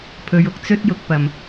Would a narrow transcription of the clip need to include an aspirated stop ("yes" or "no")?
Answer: yes